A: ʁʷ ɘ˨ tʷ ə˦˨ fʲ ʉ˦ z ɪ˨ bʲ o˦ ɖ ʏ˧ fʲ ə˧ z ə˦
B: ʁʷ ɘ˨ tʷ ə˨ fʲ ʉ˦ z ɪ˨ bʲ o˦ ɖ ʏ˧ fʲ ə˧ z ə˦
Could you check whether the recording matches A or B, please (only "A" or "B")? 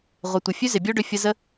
B